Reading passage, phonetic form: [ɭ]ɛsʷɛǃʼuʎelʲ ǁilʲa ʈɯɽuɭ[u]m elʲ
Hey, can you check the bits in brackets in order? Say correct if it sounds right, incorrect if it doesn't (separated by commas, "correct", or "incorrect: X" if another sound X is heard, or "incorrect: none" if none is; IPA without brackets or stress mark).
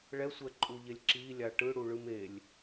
correct, incorrect: ɯ